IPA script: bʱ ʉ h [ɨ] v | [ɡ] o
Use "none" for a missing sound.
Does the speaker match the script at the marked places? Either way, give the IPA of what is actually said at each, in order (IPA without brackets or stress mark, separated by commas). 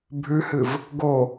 ɨ, ɡ